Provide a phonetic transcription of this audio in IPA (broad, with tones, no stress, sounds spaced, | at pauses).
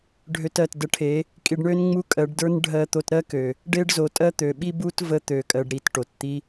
ɖʱ ø˧ t ɜ˨ t d ə˧ ʈʰ e˨˦ | kʼ i˧ ɖ ɳ ø˦ n ŋ͡m u˦ kʼ ɜ˨˦ ɖ d ə˞˦ n ɖʱ ɜ˧ t̪ o˧ t ɾ ɜ˦ k ø˨ | ɖ e˦ ɖ z o˨˦ tʼ ɜ˦ t̪ ø˨ ɓ i˦ b u˦ t v ə˦ t̪ ø˨˦ kʼ ɜ˧ ɖ ɾ i˧ t ʈ o˨ t t̪ i˦